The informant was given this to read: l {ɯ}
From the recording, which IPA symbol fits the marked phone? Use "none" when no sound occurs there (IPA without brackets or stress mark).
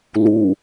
u